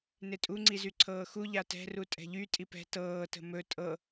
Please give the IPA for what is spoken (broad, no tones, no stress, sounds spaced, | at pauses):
n e tʼ u ŋ͡ǀ i z y ǀʰ ɤː x u ʎ a t ɛ̤ r u tʼ ɛ̤ ʎ y tʼ i p ɛ̤ t ɤː t ə̤ m ɵ tʼ ɤ